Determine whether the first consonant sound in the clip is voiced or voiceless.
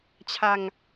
voiceless